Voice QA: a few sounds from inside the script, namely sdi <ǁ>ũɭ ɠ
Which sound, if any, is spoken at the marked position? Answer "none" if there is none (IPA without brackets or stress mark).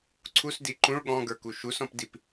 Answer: ǃ